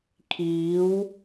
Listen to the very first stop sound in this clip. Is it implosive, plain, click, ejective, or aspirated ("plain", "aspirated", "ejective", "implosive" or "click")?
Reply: aspirated